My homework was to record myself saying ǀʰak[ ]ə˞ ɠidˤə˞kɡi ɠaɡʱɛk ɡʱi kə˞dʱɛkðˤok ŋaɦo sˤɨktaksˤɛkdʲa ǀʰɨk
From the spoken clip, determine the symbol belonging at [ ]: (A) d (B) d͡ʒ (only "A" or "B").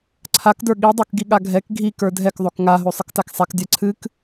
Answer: A